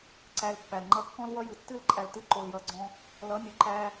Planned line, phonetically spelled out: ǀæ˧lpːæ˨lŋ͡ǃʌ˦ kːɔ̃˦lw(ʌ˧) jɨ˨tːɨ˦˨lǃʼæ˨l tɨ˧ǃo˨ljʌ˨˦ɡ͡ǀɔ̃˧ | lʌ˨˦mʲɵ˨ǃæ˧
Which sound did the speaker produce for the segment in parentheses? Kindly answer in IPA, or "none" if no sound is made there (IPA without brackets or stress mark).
ʌ˦